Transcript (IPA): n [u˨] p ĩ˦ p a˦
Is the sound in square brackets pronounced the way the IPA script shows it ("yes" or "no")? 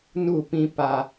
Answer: no